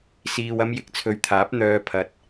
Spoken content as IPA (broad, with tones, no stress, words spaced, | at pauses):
siː˧wɐ˥m jɪ˨k̚t͡sʰɵ˨ɥt̪ʰaː˨˥p̚ n̪œː˧pʰɐ˨t̚